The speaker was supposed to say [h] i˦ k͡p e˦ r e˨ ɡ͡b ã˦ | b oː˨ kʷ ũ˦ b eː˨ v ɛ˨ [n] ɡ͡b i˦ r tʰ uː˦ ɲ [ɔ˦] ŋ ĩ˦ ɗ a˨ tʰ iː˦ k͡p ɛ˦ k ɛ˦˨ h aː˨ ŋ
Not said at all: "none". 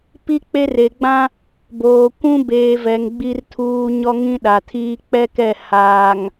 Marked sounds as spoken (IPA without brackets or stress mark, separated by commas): p, ŋ, ɔ˦